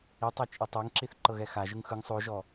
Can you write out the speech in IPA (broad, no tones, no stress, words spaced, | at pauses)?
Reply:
itˤɛ t͡ʃʼɯtˤeŋǁiθ ǃɤɣɛxaʒɯŋ xɯŋ sˤoʒɔ